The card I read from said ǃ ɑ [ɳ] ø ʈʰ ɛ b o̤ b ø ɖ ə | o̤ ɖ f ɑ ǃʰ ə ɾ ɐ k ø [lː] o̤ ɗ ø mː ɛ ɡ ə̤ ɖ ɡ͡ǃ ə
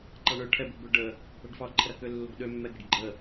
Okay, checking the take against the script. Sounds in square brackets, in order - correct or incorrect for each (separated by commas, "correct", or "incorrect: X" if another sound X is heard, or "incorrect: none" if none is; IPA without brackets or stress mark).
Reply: correct, correct